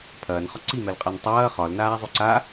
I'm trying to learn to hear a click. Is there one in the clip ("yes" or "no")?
yes